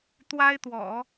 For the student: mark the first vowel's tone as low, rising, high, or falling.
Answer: high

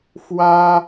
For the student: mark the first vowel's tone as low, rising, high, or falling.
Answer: high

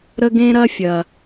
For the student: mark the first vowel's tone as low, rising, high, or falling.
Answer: high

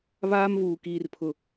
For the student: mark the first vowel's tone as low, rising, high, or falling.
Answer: high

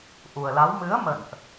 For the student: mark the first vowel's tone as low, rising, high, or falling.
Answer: low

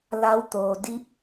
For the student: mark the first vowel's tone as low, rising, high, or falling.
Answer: rising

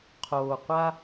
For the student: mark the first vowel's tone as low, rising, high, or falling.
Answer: low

